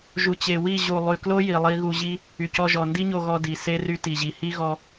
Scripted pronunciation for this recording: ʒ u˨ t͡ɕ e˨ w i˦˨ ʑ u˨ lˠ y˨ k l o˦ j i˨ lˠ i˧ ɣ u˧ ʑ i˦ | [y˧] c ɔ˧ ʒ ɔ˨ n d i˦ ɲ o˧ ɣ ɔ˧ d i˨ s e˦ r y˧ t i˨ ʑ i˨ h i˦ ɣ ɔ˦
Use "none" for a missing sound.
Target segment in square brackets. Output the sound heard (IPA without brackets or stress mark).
y˨